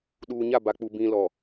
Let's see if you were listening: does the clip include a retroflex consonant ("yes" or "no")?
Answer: no